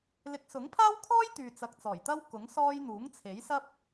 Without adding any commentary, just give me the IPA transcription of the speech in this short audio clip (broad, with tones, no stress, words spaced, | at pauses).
lɪ˨˥k̚sʊ˨˥ŋpʰaː˥wkʰɔː˥j t̪yː˨t͡sɐ˨k̚ t͡sɔː˨˩jt̪ɐ˥w kʊ˨˥ŋsɔː˥j n̪uː˨˥ŋt͡sʰe˨˥jsɐ˥p̚